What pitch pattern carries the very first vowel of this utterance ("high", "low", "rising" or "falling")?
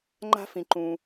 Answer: high